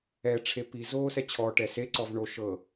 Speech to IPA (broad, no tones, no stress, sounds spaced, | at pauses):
ɛ ʈ͡ʂʰ e p i z oː s ɛ t͡ɕʰ ɔ ʈ ɛ s e ǀ ɔ v ɳ o ʃ ɤ